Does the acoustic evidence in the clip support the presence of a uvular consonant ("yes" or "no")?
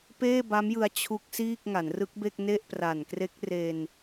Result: no